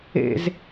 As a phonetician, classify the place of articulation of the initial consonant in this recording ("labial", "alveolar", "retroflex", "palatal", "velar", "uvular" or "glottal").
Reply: alveolar